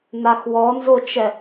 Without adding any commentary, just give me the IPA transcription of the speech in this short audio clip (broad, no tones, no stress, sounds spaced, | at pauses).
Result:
n a x w ɔ n z o t͡ʃ ɛ